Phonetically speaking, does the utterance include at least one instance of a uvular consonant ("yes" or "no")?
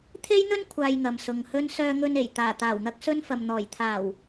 no